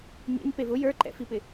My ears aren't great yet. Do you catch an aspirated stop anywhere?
no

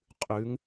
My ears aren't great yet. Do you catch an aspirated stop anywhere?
no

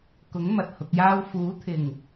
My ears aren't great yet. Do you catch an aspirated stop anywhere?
yes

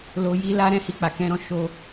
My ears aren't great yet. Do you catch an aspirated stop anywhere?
no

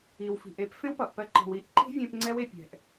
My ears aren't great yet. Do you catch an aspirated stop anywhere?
no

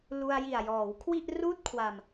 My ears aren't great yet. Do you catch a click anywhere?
no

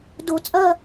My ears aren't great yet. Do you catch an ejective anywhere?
yes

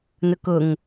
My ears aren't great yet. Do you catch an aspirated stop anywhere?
no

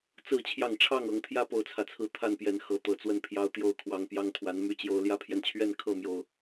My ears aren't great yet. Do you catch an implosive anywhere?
no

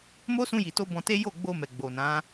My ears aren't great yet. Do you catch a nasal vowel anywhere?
yes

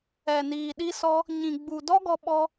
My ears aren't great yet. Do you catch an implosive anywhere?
yes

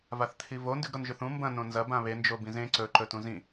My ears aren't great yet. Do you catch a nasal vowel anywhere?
yes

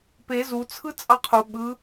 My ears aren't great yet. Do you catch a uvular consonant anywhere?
yes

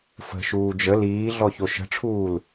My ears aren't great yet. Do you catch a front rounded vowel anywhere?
no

